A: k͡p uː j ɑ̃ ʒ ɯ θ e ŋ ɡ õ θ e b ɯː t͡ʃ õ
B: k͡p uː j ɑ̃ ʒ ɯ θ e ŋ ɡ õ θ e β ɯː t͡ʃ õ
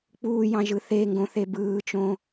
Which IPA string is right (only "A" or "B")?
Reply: A